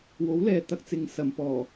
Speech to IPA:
w o˨˥ w l ɛː˨ t̪ ɐ˧ k̚ t͡s ɪ˨ ŋ s ɐ˨ m p ɔː˨˩

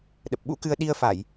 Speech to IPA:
ɗ ə˨˩ p̚ ɓ ṵ˧˥ k ɨ˧ ə̯ ɗ i˧ ə̯ f a˧˩˨ j

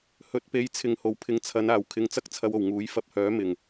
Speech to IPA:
h ɵ˨ t̚ p e˨˥ j t͡sʰ ɪ˨ ŋ h o˨˩ w pʰ ɪ˨ ŋ t͡sʰ ɐ˨˧ n aː˨˩ w kʰ ɪ˧ ŋ t͡s ɐ˥ k̚ t͡sʰ ɐ˧ w o˨˩ w ŋ uː˨˥ j f ɐ˧ p̚ h œː˨˥ m ɪ˨˩ ŋ

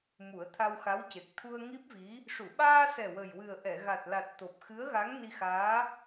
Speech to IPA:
m u˨˩˦ ə̯ t̪ʰ a˧ w x a˧˥ w c e˨˩ k̚ t̪ʰ u˧ ə̯ ŋ i˦˥ p̚ v i˧˥ | ʂ u˨˩˨ ɓ aː˧ s ɛ˨˩ w ə˨˩ j w ɨ˨˩ ə̯ ʔ ɛ˨˩˨ ɣ a˨˩ t̚ l a˨˩ t̚ t̪ o˨˩ p̚ x ɨ˧˥ ə̯ ɣ a˧˥ ŋ n i˧ x aː˧˥

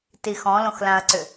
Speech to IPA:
t i x ɔ̃ l õ x l ã ɐ̯ ǀ ʏ

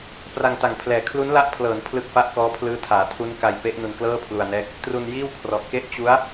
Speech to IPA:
p r a˧ ŋ t a˨˩ ŋ pʰ l ɛː˨˩ kʰ l u˦˥ n l a˦˥ ʔ pʰ l ɤː˩˦ n pʰ l ɯ˥˩ k̚ f a˥˩ ʔ k ɔː˦˥ pʰ l ɯː˦˥ tʰ aː˩˦ tʰ u˦˥ n k a˧ j p e˦˥ ʔ n u˧ n k l ɤː˥˩ pʰ l u˧ a̯ n ɛː˦˥ k̚ | t r u˧ n j iː˥˩ w kʰ r ɔ˨˩ ʔ k e˥˩ ʔ t͡ɕ u˦˥ a̯

